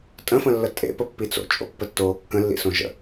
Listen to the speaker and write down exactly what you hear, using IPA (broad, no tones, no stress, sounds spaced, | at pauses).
tʼ ə̃ f ə̃ lː ə tʼ ḛ p ə pː i t͡s o̰ t͡ʃʼ o̰ pː ə tː oː kː ə̃ lː ḭ s õ ʒ ə̰